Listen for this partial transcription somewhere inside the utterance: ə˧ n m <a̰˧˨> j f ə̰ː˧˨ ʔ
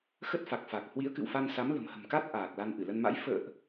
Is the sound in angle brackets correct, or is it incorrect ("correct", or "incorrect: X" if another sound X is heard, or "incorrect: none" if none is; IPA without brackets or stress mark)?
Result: incorrect: a̰˧˥